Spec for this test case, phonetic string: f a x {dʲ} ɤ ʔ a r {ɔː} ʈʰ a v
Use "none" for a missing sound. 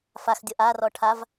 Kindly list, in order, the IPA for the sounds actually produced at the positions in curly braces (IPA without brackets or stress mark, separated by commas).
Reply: dʲ, ɔ